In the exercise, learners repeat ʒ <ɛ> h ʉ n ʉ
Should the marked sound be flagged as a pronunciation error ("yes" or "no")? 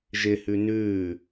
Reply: yes